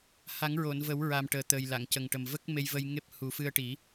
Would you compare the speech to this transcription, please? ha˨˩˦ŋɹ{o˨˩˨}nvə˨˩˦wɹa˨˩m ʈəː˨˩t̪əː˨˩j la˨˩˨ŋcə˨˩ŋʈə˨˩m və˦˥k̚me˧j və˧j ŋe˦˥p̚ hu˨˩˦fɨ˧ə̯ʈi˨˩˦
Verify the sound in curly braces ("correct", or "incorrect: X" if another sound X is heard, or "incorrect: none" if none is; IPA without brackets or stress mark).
correct